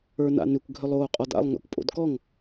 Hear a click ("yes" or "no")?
no